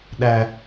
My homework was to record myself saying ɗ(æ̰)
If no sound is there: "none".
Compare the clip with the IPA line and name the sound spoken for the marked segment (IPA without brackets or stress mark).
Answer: æ